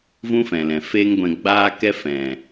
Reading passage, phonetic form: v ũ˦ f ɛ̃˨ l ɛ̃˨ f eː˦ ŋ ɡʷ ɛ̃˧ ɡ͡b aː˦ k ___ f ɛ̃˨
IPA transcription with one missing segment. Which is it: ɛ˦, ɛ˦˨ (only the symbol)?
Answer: ɛ˦